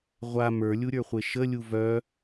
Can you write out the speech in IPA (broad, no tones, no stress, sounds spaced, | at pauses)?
ʁʷ a m ə˞ lʲ u ɾʲ ə˞ χʷ e ʃ ə lʲ u v œ